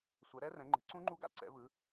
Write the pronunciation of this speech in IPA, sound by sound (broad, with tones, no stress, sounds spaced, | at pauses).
sʷ ɛ˨˦ ɾ ɛ˦˥ r ɛ̃˨˦ ŋ͡ǃ e̤˨˦ ǀ ũ˦˥ ŋ͡ǃ u˦˥ ɡ a̰˦˥ ǀ ɛ̰˨˦ v ɯ˨˦